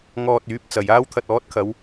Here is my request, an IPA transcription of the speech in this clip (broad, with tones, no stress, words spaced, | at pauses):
ŋɔː˧t̚ yː˨˥p̚t͡sɐ˨j aː˥wt̪ʰɐ˧t̚ɔː˨˥t̚kʰɐ˨˧w